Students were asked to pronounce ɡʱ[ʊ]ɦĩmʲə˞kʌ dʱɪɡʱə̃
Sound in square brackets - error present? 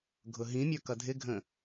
no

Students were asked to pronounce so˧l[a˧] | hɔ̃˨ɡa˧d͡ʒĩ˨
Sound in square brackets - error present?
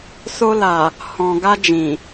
yes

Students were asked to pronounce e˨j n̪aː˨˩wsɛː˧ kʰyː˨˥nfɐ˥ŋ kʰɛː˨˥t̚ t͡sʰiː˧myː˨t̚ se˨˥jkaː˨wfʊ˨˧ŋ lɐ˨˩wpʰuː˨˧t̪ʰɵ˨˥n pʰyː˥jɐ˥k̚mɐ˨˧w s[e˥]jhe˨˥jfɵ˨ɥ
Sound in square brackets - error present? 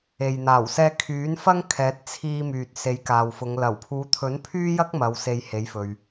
yes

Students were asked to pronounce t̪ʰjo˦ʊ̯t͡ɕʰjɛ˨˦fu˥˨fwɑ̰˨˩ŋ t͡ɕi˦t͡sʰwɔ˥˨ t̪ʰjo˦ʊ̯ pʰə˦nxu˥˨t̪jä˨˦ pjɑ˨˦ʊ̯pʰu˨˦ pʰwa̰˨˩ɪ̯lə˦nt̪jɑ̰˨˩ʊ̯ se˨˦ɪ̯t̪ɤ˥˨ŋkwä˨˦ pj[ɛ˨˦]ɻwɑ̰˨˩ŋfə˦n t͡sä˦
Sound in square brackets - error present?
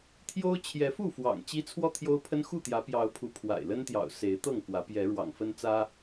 no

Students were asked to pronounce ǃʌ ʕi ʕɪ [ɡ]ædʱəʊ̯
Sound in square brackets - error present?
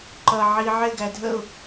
no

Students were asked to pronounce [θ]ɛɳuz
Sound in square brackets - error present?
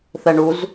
no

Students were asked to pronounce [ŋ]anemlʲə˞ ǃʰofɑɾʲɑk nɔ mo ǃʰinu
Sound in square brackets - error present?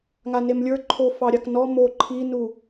no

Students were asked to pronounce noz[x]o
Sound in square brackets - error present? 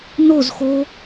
no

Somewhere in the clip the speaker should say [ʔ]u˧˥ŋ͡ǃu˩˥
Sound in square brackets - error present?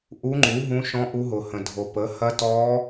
no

